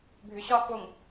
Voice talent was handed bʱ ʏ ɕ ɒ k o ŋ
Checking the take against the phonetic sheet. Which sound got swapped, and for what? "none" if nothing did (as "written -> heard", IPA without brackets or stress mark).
none